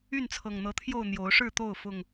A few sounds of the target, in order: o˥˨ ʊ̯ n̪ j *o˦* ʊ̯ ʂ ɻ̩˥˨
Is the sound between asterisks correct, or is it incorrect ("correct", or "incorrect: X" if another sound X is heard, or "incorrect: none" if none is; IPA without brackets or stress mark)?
incorrect: o˨˦